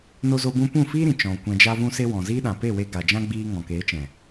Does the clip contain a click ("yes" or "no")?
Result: no